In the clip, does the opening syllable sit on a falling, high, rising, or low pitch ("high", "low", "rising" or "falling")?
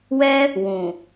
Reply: high